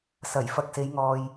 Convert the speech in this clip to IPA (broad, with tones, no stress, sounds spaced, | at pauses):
s ɐ˨˩ j f ɐ˨ k̚ s e˨˧ j ŋ ɔː˨ j